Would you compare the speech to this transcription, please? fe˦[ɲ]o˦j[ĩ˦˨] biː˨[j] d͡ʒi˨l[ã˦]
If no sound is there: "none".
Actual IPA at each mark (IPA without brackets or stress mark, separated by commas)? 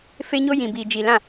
ɲ, ĩ˨, none, ã˦˨